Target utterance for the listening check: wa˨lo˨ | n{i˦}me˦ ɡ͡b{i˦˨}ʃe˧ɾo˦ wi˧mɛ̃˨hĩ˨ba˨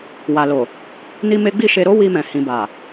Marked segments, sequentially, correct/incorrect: correct, correct

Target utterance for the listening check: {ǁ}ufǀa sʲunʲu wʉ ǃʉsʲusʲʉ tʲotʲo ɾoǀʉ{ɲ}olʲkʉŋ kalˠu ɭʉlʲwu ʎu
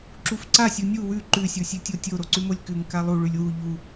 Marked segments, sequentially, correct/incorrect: correct, incorrect

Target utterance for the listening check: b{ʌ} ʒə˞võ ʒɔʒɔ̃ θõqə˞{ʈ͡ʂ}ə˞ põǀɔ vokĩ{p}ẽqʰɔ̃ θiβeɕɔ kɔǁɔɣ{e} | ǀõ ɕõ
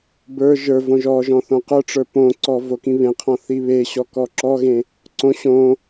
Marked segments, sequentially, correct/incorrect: incorrect, correct, incorrect, incorrect

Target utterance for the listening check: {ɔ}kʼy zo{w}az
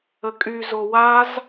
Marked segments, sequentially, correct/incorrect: incorrect, correct

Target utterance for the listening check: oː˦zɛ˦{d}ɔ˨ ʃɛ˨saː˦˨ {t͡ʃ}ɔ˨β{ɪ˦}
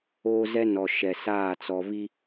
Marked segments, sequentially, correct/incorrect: incorrect, incorrect, incorrect

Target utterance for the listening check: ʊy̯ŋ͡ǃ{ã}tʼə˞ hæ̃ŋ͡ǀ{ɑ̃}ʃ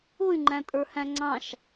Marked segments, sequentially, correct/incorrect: incorrect, correct

